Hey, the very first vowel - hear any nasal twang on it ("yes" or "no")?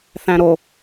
yes